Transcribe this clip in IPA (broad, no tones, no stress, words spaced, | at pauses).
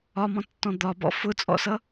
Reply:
ɒmɔ̃tːɔ̃ d̪ɒbɔ̰ fʊt͡sʼɔ̰sʌ